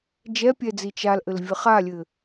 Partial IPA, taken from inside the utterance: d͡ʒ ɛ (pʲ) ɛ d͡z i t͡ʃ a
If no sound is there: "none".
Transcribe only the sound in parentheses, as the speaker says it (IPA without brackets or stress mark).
pʲ